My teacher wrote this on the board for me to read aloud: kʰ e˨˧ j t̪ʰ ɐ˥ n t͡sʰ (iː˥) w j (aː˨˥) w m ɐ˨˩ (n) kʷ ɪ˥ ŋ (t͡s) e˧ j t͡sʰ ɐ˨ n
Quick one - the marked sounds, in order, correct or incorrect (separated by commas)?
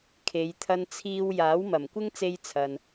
correct, correct, incorrect, correct